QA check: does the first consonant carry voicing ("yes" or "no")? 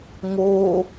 yes